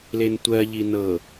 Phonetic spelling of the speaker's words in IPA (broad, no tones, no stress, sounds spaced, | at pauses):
l e n tʷ ɜ ʎ i n ɤ